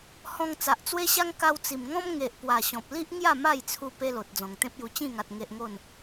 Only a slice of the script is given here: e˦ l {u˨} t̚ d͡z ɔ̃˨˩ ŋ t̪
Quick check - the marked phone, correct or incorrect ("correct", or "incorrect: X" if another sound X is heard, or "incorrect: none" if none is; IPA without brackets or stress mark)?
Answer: incorrect: o˨